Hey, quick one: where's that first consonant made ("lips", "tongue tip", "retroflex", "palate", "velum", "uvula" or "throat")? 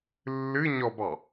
tongue tip